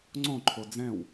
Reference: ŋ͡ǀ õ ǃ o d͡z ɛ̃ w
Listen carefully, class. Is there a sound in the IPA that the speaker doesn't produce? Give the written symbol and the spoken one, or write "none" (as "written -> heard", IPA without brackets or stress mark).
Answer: ǃ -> ǃʰ